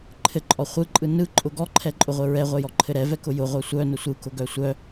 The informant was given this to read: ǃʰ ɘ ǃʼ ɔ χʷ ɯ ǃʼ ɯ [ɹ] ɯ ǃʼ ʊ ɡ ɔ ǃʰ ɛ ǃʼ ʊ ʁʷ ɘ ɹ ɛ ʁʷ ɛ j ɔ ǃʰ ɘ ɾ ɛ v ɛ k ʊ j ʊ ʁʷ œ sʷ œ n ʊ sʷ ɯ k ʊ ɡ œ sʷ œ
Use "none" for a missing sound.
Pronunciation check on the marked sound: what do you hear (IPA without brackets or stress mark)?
n